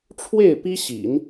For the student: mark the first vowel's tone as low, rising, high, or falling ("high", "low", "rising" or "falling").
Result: falling